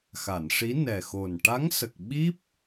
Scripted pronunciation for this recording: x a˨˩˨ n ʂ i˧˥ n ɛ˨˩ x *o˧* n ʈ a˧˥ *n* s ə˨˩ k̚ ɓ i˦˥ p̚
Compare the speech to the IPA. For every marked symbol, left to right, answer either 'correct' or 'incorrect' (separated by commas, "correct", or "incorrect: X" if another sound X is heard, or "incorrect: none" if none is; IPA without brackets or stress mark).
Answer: incorrect: o˨˩, incorrect: ŋ